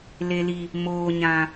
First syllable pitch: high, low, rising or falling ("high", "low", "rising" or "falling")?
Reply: low